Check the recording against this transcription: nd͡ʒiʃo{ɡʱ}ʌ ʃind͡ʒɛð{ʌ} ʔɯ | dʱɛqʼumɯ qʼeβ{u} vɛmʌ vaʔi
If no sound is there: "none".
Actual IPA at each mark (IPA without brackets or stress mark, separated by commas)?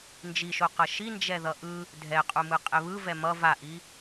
q, ʌ, ɯ